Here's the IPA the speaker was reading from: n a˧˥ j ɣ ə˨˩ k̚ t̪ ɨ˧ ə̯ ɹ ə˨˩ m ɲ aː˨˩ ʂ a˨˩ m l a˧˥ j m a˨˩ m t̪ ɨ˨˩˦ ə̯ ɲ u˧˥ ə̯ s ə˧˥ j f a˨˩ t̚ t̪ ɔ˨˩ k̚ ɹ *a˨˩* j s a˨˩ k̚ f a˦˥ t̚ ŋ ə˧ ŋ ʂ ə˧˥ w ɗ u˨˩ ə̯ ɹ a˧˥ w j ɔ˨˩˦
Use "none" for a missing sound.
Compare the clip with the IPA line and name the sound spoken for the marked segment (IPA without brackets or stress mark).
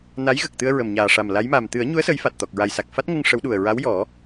a˨˩